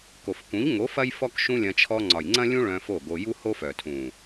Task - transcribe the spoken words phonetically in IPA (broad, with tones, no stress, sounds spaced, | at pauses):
k o˨ f k ũ˨˦ ʎ ŋ o˨˦ f ɐ˦ j f ɔ˦ k ʃ ũ˦ lʲ ɐ̃˧ t͡ʃʰ ɔ˧ ŋ͡ǀ ɒ˨ j ŋ͡ǀ ɐ̃˦ lʲ ũ˦ ɭ œ̃˧ f o˦˨ ɡ o˧ j u˦ h o˦ f œ˨ tʰ ũ˨